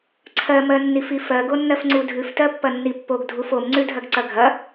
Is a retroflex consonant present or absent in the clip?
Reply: absent